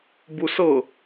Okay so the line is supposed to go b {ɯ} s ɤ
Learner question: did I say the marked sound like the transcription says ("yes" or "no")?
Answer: no